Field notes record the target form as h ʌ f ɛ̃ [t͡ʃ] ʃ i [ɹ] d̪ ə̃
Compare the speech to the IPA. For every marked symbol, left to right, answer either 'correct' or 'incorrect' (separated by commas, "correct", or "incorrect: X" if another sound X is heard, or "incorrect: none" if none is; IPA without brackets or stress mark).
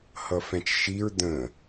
correct, correct